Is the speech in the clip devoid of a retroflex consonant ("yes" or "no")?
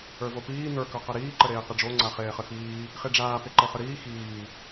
no